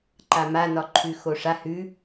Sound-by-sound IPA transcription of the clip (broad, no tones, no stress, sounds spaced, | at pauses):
ǃ a m a n ɒ ǃʰ ʉ x o ʂ a h ʉ